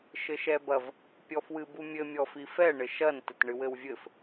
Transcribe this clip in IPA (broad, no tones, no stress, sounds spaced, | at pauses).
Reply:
ʃ ɘ ʃ ɛ b ɐ v | pʲ ɔ f w ɨ b u mʲ ɘ mʲ ɔ f i f ɛ ɳ ɘ ʃ ɐ n t ɘ t ɳ ɨ w ɘ w vʲ ɘ f